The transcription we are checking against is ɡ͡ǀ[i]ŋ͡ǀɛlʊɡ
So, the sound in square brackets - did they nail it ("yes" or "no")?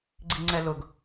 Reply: yes